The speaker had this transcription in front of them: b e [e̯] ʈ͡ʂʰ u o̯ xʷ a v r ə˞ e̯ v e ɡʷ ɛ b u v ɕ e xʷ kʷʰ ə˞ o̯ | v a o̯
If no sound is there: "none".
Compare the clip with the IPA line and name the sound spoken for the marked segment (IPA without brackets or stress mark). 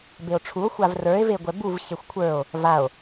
o̯